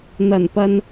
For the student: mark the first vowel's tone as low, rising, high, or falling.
low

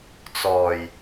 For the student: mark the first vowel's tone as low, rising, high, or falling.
low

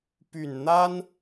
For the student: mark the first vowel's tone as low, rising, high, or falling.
low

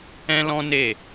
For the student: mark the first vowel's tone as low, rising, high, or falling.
high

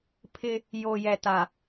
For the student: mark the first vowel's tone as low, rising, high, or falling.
high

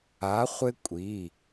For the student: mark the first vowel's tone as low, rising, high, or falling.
rising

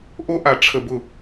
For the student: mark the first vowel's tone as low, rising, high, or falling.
high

